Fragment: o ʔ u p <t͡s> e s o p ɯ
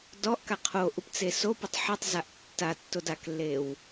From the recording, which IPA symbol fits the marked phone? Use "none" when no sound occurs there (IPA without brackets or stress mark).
t͡s